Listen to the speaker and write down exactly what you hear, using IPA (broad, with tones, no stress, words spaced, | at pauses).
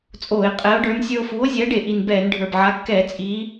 t͡sʼoː˧˩˧e̯ qʼɛ˨˥o̯ɖə˞˨˥n sʲə˞˧o̯fuː˨˥o̯zʲɛː˨˥ɖe˨˩ ʔi˨˩nbɛː˧˩˧n ɖʱə˞˨˩bʕa˨˥ kːɛː˧˩˧ t͡sʼiː˨˥